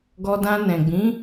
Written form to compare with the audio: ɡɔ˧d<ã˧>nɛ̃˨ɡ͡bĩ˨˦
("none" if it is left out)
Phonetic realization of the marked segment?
ã˧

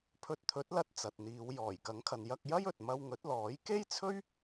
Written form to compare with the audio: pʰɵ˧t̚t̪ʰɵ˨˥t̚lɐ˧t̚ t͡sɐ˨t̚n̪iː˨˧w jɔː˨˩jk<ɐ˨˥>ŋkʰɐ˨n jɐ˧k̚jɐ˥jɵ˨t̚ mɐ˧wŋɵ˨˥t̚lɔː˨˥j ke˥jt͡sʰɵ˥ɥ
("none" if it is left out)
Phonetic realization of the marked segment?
ɐ˨˥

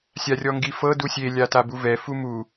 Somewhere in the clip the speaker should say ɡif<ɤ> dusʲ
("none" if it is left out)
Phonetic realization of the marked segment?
ɤ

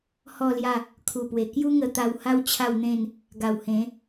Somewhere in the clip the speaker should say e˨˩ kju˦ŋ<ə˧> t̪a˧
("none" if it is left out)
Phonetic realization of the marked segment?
ə˧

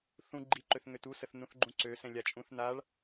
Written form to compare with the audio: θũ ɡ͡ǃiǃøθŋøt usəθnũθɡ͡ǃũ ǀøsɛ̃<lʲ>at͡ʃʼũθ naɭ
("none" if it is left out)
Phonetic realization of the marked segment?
lʲ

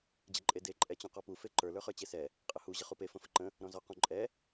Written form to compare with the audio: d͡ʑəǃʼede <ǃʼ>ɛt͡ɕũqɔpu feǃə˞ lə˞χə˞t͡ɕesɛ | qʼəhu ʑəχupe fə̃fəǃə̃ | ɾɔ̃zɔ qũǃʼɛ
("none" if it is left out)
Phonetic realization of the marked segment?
ǃʼ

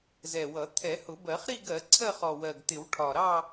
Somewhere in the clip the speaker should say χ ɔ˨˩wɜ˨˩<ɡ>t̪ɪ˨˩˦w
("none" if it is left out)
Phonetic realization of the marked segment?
ɡ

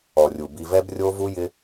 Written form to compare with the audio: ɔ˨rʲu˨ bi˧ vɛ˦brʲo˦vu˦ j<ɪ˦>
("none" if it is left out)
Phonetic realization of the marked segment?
ɪ˦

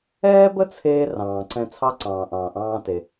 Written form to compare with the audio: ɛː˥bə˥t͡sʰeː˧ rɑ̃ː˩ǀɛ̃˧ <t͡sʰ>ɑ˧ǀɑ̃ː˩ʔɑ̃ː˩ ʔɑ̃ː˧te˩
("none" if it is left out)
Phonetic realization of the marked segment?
t͡sʰ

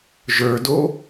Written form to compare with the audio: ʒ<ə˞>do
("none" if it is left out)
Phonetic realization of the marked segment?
ə˞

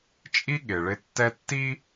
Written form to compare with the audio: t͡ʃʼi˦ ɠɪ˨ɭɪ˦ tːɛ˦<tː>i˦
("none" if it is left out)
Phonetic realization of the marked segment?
tː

